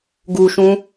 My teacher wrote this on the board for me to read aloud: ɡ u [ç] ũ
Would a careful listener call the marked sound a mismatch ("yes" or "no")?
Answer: yes